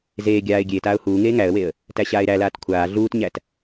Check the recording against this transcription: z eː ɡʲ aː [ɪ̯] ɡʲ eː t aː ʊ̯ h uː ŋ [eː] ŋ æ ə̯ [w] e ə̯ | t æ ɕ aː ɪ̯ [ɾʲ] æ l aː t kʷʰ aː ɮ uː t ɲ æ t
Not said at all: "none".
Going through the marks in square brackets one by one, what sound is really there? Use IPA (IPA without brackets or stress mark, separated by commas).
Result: ɪ̯, eː, w, ɾ